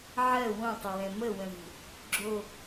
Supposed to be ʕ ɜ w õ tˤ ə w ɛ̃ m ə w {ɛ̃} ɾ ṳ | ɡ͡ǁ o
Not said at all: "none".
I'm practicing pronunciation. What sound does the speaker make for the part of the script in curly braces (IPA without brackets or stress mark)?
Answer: ə̃